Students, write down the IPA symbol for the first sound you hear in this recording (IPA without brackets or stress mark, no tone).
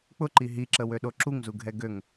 k͡p